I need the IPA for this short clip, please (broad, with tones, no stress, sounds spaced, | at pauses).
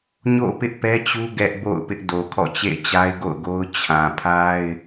ɲ o̰˦˨ p ɪ˦ ʔ p ɛ˦ t͡ɕ u˦ ɡ ɛ˦ ʔ b o̰˦˨ ʊ̯ p ɪ˦ ʔ d o˨ kʰ ɔ̰˦˨ t͡ɕ ḛ˦˨ ɪ̯ t͡ɕ a˦ ɪ̯ ɡ o̰˦˨ ʊ̯ ɡ o˦ ʊ̯ t͡ɕʰ ã˨ pʰ a˦ ɪ̯